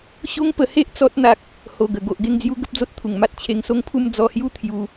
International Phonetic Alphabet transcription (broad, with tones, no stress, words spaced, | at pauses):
ɕo˦ŋpə˧he˦ʔ t͡sɔ˦t̚ n̪a˦k̚ | ho˨˩ɡə˨˩ ɡo˨ʔɡe˥˧ŋd͡zju˦ ɡə˦p̚d͡zo˦t̚t̪ʰu˨˩ŋma˦t̚ t͡ɕʰe˧ŋso˦ŋpʰu˥˧m d͡zɔ˧hju˥˧ t̪ʰju˧